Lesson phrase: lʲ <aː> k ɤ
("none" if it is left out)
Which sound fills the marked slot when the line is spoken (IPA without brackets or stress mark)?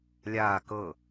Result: aː